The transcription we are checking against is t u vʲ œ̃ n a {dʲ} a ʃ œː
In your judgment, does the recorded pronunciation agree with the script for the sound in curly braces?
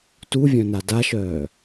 no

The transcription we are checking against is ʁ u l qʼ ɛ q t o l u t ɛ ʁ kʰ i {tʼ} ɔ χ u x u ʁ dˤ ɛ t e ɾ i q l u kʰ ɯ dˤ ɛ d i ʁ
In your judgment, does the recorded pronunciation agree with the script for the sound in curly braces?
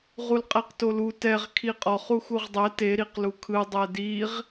no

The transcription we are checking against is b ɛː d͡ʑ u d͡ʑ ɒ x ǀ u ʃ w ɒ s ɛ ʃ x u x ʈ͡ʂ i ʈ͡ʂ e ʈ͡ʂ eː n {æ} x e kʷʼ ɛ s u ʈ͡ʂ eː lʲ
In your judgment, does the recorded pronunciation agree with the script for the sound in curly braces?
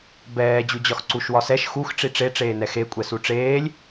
no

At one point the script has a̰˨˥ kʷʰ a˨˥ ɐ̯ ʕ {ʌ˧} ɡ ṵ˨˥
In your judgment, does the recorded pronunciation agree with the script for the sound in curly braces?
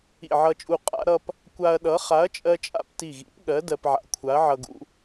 yes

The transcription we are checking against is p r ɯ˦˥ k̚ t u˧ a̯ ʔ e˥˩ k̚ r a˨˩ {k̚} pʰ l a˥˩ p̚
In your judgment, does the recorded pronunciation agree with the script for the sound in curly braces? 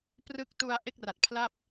no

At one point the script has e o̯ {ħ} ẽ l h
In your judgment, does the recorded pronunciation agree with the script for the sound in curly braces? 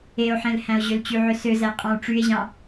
yes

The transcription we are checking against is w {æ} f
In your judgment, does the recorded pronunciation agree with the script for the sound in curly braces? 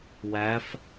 yes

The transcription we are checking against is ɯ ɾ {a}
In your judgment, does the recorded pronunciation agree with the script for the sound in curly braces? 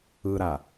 yes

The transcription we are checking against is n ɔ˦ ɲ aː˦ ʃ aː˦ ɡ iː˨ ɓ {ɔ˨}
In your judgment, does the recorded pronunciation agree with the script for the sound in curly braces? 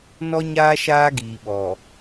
yes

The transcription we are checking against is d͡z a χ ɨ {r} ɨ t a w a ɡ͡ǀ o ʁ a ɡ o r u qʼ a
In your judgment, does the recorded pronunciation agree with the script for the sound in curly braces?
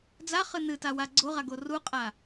no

